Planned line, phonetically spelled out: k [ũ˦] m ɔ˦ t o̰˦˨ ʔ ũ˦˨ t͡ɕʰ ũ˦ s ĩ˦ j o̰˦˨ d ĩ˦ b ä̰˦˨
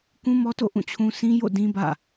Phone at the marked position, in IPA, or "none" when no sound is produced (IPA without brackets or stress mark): ũ˦